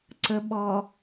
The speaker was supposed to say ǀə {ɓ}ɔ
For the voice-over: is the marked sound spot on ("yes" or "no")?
yes